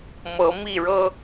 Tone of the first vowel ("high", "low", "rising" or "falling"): rising